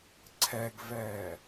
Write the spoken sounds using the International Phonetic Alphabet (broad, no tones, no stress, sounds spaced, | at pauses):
ǀʰ ɛ ɡ v ɛː